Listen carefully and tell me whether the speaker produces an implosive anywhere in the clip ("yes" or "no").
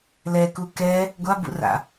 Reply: no